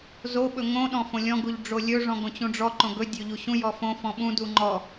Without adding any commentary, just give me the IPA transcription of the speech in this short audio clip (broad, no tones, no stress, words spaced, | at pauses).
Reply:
zoɓɵ ŋõ ɗɔ̃fõlʲɔ̃ɡuʎ ɖ͡ʐolʲɵʐɔ̃ɡ õt͡ɕũɖ͡ʐɔǃõ ɡɵdʲɵ ʎuɕũjɔ fõ fɔ̃ɓũdu ŋ͡ǃɔ